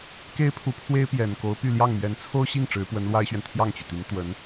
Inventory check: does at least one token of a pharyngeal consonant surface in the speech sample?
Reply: no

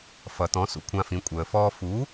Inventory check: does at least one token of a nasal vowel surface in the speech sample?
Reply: yes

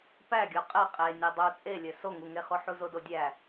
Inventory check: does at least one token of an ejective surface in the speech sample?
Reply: yes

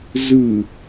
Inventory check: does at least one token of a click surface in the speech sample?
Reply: no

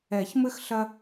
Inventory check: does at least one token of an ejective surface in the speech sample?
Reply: no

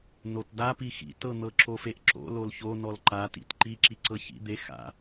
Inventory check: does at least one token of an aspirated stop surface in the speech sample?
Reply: no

